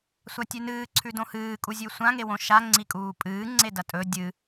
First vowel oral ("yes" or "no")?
yes